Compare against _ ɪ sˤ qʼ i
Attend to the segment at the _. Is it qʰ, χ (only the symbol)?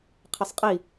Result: qʰ